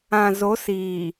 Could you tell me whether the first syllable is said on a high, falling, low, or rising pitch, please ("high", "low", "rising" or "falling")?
low